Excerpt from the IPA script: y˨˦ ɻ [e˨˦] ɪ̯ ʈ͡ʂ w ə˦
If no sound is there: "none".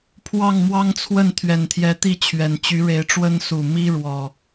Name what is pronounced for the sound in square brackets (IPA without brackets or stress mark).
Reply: e˨˦